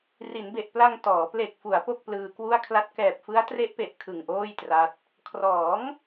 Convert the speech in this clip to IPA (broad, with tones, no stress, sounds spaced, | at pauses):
r i˩˦ n b e˨˩ ʔ p l a˧ ŋ t ɔː˩˦ p l e˨˩ k̚ f u˩˦ a̯ p o˥˩ k̚ p l ɯː˧ k w u˥˩ a̯ kʰ l a˥˩ t̚ k ɛː˨˩ p̚ f ɯ˦˥ a̯ t r e˦˥ ʔ p e˨˩ ʔ kʰ ɯ˨˩ ŋ ʔ oː˥˩ j t r a˦˥ t̚ | kʰ r ɔː˩˦ ŋ